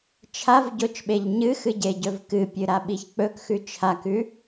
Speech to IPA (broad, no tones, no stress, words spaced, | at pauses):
t͡ʃʰavɟot͡ʃɓeʎ ɲɨxɨɟeɟɵv kɨpʲɨɾaɓiç k͡pɵkxʉ t͡ʃʰakʉ